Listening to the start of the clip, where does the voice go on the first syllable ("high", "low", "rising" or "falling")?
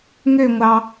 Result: falling